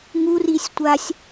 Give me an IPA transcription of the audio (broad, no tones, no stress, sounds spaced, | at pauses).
ŋ u r i sʲ tʷ a sʲ